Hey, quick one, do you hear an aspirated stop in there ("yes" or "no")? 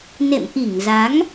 no